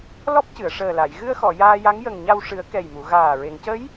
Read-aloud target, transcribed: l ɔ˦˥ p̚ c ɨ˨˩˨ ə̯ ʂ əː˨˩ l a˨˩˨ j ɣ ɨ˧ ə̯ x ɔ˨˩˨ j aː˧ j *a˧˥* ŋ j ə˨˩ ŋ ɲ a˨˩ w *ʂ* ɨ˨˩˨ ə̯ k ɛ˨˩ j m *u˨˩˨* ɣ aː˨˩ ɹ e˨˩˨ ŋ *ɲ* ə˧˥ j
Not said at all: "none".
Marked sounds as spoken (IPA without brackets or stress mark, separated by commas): a˧˥, ʂ, u˨˩˨, c